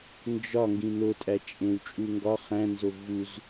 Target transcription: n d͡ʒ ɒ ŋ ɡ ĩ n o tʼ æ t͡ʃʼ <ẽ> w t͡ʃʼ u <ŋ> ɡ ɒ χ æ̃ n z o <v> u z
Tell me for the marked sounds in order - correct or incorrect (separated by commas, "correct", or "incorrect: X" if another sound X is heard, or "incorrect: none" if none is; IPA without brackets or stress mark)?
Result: correct, correct, correct